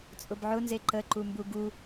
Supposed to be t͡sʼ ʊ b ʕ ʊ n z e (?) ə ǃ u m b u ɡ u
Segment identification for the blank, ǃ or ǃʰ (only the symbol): ǃ